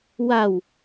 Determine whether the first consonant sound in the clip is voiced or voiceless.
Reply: voiced